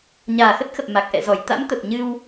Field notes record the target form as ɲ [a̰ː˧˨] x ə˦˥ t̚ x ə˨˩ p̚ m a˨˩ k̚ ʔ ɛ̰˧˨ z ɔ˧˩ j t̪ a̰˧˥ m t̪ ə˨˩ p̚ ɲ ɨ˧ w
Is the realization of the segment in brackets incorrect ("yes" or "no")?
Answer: yes